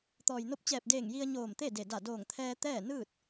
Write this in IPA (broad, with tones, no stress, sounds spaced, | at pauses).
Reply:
t̪ ɔː˩ j n o˧ p̚ t͡ɕ ɛː˧˩ p̚ d eː˧˩ ŋ j i˧ ə̯ ɲ oː˧˩ m t̪ e˥˨ d e˧˩ d a˧˩ d oː˧˩ ŋ t̪ʰ ɛː˧ t̪ ɛː˥˨ n ɯː˥˨ t̚